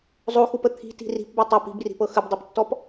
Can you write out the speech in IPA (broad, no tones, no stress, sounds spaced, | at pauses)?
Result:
zˤ o x u p ə t̪ʰ i̤ t i̤ r i̤ p b o tˤ ɤ p i̤ b r i̤ p ɤ x ə b dˤ ɤ p tː ɔ p